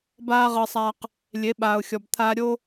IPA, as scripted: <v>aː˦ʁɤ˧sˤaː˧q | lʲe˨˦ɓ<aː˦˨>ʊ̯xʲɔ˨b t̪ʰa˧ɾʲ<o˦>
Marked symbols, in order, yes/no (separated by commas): no, no, yes